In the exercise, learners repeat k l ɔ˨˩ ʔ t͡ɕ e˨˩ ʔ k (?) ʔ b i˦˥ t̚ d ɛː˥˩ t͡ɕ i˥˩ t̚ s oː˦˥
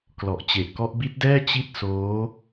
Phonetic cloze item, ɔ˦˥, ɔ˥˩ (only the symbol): ɔ˦˥